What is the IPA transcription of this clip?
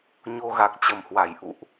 ɲ o˧ ɣ a˨˩ k̚ t͡ɕ ə˧˩ m h w a˧˩ j ʔ ṵ˧˨ ʔ

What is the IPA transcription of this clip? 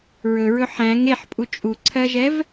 ɹ ɵ ɹ ɵ ħ æ̃ ŋ e ħ pʼ u t͡ʃʼ u ǀʰ ɜ ʒ ɛ v

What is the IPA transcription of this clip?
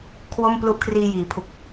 kʰ w o˥˩ m p l u˦˥ ʔ kʰ r iː˧ j iː˩˦ pʰ u˨˩ k̚

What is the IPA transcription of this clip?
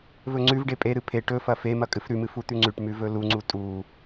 v ɵ ŋ͡ǀ ʉ v ɖ e pʼ e ɾ ɨ pʰ e ʈ ɵ f ɐ f e m ɐ kʼ ɨ f ɾ ʉ m ɨ f u t̪ ʉ ŋ͡ǀ ʉ ʈ m ʉ v ɵ l u ŋ͡ǀ u tʼ u

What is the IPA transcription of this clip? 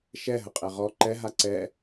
ʃ ɛ ɦ ə qʼ ɛ ʁ ɔ ǃ ɛ ɦ a ǀ ɛ

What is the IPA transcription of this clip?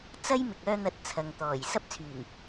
t͡s ɐ˥ j m ɪ˨ k̚ œː˧ n̪ ɐ˨˥ t̚ t͡sʰ ɐ˨ ŋ t̪ ɔː˨˩ j s ɐ˥ p̚ t͡sʰ yː˨˩ ŋ

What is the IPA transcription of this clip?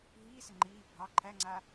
ɦ iː s ɪ ŋ͡ǃ iː bʱ ɑ ǃʰ æ ŋ͡ǀ a

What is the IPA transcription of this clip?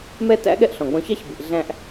m ɛ˥ t æ̰˥ ɠ ɛ˥ ʔ ɬ ɔ̃˩ ɡ͡b ɔ̃˧ ç ɑ˥ ç b i˩ ʔ ɮ æ̃˧ ʔ

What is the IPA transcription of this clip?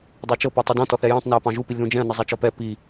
dˤ ɑ t͡ʃ ɤ p ɔ tˤ u d ɔ̃ t ɔ θ ɛ j ɔ̃ tˤ n æ ɐ̯ p ɑ̃ ʒ u p i lʲ ð ũ d͡ʒ ɛ̃ ɐ̯ n ɤ zˤ æ t͡ʃ ɔ p ɛ p i

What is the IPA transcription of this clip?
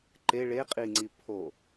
ǃ e ɭ e qʼ i ŋ͡ǀ i pʰ o

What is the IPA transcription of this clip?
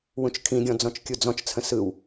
w ũ t͡ʃ kʰ ĩ ɡʲ ɔ̃ d͡z ɔ̃ t͡ʃ kʲ u d͡z ɔ̃ t͡ʃ t͡sʰ ə̃ s ɯ w

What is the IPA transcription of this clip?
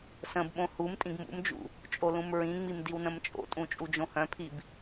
s ə̃ b ɓ õ h u m tʼ ĩ ɡ m ṵ m d͡ʒ ṵ | t͡ʃʼ o l ũ m ɹ ĩ ŋ͡m i m d i w n ə̃ m t͡ʃʼ o̰ tʼ ũ t͡ʃʼ u d͡ʒ õ h œ̃ pʰ i b

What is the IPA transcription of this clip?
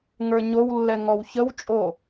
ŋ ə˞ ɲ o w lː ɛ ŋ ɔ w ç ə w t͡ʃʼ o

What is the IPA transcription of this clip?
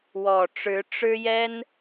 w ɔ˨˩ ʈ͡ʂ ɻ̩˧˥ ʈ͡ʂ ɻ̩˥ j ɛ˥ n

